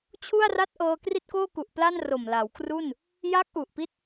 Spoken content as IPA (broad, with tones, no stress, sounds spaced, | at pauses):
t͡ɕʰ u˥˩ a̯ r a˥˩ t̚ ʔ ɤː˧ k r i˥˩ t̚ k oː˥˩ k u˨˩ ʔ p l a˥˩ n r o˨˩ m l a˩˦ w k r u˥˩ n | j a˦˥ k̚ ʔ u˨˩ ʔ p i˦˥ t̚